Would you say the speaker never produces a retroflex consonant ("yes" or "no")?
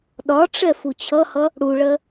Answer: no